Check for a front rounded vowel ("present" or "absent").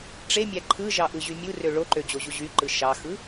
present